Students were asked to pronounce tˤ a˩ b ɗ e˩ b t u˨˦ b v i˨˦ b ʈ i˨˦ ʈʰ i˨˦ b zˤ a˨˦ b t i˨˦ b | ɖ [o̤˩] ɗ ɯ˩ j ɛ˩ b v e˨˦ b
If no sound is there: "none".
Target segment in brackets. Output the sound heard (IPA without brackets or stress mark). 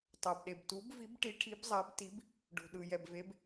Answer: o̤˩